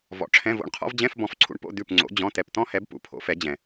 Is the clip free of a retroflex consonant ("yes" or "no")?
no